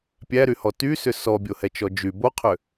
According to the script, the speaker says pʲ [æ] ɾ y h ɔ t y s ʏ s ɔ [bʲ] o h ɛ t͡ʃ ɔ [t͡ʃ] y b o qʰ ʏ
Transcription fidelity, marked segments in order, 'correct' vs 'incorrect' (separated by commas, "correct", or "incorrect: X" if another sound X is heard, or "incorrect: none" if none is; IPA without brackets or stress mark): correct, correct, incorrect: d͡ʒ